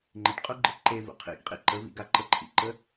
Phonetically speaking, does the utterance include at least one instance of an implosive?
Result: no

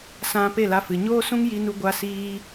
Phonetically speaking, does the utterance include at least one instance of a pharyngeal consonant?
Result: no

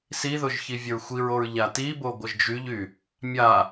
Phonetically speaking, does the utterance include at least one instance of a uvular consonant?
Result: no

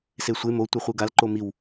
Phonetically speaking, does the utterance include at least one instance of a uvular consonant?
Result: yes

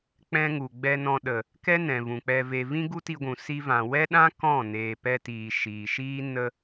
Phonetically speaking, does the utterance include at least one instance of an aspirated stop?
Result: no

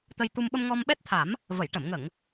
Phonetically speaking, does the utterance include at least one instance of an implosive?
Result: yes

